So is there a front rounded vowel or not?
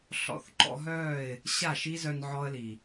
yes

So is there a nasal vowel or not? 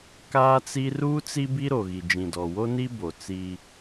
yes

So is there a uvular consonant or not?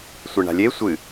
no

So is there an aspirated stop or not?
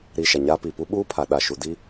yes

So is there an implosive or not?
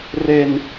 no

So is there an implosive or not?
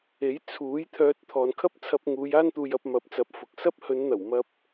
no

